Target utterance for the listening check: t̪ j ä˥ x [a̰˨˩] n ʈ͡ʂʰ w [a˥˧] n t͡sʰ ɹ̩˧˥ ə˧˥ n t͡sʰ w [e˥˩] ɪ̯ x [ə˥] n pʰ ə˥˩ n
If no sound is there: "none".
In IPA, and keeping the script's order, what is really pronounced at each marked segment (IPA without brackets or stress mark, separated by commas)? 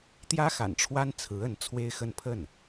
a̰˨˩, a˥, e˥, ə˥˧